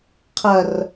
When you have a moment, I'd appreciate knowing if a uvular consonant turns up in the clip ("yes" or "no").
yes